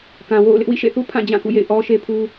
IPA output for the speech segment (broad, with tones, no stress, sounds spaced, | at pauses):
k ã˨ w o̰˦˨ ʊ̯ l ɪ˦ ʔ w ḭ˦˨ ʃ ḛ˦˨ θ u˦ pʰ ã˦˨ d͡ʑ ã˦˨ k ṵ˦˨ j ḛ˦˨ ɪ̯ ʔ ɔ˦ ʃ e˦ pʰ u˦